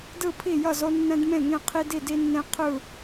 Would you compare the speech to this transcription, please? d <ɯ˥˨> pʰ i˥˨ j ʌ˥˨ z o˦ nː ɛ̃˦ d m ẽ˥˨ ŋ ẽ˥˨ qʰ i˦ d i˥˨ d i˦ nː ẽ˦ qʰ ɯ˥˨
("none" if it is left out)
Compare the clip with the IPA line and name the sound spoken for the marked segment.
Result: ɯ˥˨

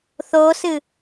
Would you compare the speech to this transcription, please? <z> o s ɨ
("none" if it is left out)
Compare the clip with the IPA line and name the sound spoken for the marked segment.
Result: θ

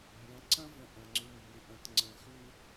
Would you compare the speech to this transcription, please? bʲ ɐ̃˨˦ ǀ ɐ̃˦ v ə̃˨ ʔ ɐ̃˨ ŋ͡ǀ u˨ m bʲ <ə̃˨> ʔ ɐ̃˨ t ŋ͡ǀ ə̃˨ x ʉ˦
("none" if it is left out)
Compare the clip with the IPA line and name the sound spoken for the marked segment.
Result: ə̃˨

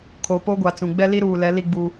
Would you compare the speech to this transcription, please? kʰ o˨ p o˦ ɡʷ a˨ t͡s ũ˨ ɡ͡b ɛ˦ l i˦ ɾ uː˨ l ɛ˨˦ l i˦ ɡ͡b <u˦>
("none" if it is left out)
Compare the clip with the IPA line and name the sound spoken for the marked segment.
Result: u˦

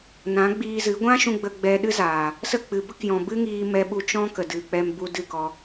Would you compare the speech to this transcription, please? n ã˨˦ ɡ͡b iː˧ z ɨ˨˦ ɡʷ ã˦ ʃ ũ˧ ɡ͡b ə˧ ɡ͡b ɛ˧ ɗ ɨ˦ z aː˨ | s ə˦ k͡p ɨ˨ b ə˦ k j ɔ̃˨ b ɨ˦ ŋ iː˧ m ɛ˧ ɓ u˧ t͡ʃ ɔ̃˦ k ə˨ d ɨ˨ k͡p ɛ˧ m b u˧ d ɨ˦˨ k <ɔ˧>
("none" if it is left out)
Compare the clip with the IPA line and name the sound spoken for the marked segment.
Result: ɔ˧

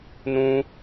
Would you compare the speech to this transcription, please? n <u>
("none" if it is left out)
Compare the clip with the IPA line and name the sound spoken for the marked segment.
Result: ũ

